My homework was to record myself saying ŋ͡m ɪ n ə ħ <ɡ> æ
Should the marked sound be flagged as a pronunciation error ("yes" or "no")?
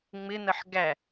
no